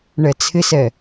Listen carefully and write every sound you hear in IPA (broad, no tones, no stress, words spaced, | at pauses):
ɳɛt͡sʰɪsɛ